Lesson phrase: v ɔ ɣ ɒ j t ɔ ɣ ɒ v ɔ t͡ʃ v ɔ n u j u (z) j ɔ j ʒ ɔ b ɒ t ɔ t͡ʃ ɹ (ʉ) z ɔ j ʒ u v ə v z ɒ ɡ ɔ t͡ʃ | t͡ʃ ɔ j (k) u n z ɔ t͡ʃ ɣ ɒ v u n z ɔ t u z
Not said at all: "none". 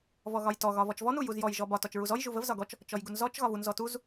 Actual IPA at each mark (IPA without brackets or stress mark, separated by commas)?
z, u, ɡ